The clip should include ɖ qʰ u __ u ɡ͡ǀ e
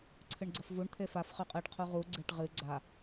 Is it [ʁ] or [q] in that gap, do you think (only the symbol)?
ʁ